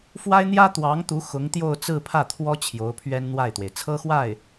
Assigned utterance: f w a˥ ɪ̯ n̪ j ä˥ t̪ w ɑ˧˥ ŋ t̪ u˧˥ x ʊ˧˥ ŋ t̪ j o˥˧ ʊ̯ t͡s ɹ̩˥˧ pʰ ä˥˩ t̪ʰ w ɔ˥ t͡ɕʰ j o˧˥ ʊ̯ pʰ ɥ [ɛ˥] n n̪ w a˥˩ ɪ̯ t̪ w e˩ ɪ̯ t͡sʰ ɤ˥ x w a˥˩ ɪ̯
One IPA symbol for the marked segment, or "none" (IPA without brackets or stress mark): ɛ˥